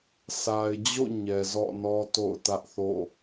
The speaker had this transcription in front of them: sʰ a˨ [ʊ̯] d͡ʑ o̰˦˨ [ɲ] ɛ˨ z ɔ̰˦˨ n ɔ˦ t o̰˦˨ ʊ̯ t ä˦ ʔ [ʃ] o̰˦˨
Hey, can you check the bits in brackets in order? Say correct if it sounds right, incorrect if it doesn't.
incorrect, correct, incorrect

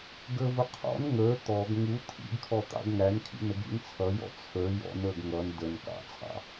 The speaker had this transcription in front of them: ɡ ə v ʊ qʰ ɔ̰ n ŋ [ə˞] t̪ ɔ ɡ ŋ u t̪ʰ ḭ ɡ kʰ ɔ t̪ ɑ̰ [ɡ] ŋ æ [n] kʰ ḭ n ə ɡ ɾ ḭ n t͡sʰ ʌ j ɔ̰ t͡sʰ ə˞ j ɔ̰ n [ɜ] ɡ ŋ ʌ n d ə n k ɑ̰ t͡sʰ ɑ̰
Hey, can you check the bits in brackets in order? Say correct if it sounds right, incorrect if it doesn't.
correct, correct, correct, incorrect

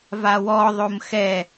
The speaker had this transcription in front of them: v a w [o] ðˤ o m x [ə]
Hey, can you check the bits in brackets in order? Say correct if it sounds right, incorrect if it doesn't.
incorrect, incorrect

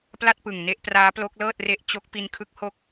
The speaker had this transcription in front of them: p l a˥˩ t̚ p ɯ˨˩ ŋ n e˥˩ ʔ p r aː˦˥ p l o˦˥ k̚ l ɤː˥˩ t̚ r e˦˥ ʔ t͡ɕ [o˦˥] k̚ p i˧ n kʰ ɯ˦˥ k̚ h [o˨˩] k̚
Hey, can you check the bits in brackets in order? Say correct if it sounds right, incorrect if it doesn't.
correct, incorrect

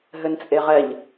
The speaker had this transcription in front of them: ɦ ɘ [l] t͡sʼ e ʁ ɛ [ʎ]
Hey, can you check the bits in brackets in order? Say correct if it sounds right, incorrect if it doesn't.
incorrect, correct

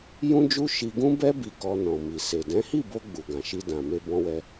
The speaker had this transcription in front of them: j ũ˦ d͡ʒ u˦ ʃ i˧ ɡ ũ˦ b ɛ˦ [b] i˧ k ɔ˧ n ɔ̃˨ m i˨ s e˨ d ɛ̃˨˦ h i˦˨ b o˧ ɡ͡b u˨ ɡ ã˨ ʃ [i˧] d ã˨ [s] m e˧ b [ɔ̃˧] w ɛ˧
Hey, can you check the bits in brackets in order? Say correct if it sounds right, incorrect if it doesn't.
correct, correct, incorrect, correct

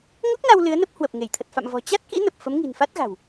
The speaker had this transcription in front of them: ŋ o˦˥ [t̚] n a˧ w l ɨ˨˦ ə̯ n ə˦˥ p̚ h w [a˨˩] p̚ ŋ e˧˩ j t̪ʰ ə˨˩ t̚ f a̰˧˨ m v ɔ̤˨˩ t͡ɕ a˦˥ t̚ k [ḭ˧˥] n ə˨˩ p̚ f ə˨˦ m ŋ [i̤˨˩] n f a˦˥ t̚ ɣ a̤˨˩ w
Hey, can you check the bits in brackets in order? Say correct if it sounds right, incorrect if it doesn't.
incorrect, incorrect, correct, correct

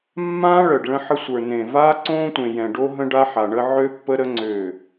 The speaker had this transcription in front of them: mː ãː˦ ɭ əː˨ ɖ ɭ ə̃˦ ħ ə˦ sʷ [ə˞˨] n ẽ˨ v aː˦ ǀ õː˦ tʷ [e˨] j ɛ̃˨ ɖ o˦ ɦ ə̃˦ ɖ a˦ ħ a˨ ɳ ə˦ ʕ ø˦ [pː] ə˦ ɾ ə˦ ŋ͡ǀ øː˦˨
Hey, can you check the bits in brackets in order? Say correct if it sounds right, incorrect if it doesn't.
correct, incorrect, correct

